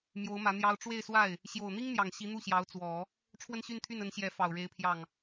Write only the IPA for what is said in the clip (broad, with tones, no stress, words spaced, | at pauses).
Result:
mjo˧˥ʊ̯mä˧˥n̪jɑ˥ʊ̯ ʈ͡ʂwe˥˧ɪ̯swa˥˩ɪ̯ | ɕjo˨˩ʊ̯n̪i˥ŋn̪jɑ˨˩ŋ ɕi˧˥n̪u˥˩ɕjɑ˧˥ʊ̯ t͡swɔ˨˩˦ | ʈ͡ʂʰwə˥˧nɕy˥˧nt̪ʰy˥˩n ə˧˥nɕjɛ˧˥ fɑ˨˩ʊ̯ɻe˧˥ɪ̯pʰjɑ˥˩ŋ